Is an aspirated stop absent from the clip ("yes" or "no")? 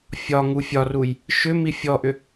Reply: yes